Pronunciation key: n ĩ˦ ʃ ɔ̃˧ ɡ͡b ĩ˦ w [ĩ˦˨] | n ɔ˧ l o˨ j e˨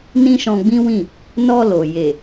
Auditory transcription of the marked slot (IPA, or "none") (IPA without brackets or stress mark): ĩ˦˨